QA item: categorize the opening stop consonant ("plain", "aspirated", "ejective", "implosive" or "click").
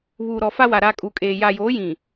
ejective